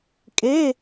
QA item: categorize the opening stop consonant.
ejective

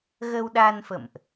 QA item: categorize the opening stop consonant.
implosive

